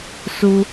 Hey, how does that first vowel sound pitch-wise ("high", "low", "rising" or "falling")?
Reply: high